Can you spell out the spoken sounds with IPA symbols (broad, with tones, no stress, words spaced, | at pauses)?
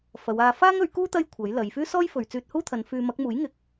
fɐ˨˧waː˧ faː˥ŋɵ˨˥ɥkuː˥ t̪ɐ˥jkʷʰɐ˨˥jlɐ˨˧j fyː˥sɔː˥jfɵ˨ɥ t͡syː˧t̚huː˥t̪ʰɐ˨˧n fyː˧ mɐ˨˥k̚muː˨˥jŋɪ˨˥k̚